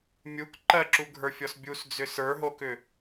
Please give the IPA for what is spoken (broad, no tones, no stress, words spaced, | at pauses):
mʲuk ǃɜǁuɡʱə˞fʲɔs bʲusd͡zʏ sə˞ɦokʏ